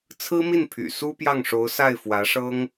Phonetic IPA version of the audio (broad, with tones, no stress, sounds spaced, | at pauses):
t͡sʰ ɹ̩˥ m i˥˩ n pʰ y̰˨˩ s u˥ p j ɑ˥˩ ŋ ʂ o˧˥ ʊ̯ s a˥˩ ɪ̯ f w ä˧˥ ʂ ɤ˥ ŋ